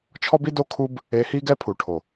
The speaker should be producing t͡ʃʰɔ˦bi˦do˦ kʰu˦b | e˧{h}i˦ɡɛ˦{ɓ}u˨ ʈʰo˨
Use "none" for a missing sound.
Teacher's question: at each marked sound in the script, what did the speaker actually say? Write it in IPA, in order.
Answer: h, pʰ

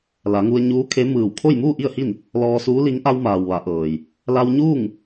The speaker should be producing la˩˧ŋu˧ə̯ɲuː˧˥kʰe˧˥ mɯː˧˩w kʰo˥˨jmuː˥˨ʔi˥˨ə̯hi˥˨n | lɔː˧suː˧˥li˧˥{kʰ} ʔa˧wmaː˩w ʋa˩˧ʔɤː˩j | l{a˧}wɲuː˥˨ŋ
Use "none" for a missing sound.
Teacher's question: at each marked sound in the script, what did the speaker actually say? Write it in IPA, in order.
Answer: ŋ, a˧

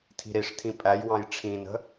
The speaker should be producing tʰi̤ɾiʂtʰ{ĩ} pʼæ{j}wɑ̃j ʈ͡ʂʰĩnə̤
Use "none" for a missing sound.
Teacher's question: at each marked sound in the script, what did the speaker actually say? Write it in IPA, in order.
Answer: ĩ, j

